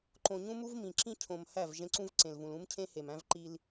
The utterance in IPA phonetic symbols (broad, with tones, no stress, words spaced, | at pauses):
ǃõ˨ɲũ˦mu˦vmĩ˨ ǁĩ˦ cʰõ˨m hæ˦˨v ʒẽ˦ǀũ˦v ǀẽ˨lvũ˨l ũ˦mcʰẽ˦he˨m æ̃˦vǃi˦l